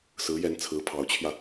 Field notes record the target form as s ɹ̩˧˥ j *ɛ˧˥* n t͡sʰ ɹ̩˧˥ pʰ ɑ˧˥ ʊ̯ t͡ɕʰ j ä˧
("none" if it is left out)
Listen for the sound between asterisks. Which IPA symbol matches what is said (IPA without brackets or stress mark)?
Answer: ɛ˧˥